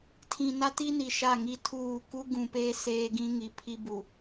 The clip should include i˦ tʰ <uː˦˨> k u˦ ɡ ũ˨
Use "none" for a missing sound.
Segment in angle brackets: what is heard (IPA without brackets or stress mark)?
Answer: uː˦˨